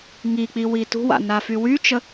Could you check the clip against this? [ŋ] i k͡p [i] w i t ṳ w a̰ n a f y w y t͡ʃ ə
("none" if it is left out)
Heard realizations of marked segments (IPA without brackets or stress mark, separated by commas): ŋ, i